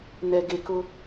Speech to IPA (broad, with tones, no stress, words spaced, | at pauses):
nɛ˨ɡe˨kʊ˦